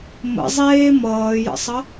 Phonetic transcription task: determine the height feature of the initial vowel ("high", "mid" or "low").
mid